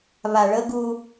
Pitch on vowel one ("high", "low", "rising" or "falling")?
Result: low